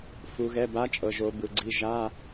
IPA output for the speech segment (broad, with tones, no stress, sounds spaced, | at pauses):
f u˩˧ ɣ ɛ˩˧˩ b a˨˥ t͡ʃʼ ɤ˩ ʒ o˩˧ b ɯ˩ ɡ͡ǀ i˩˧˩ ʒ a˧˥˧